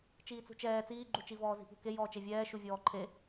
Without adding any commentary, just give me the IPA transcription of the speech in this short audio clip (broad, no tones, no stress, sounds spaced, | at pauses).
t͡ʃ iː t͡s ṳ t͡ʃ ɛː t͡s iː ɡ͡ǃ u t͡ʃ i v ɔː z i̤ p ṳ k e j ɔː t͡ʃ e vʲ ɛː ʃ u vʲ ɔː ǃʰ e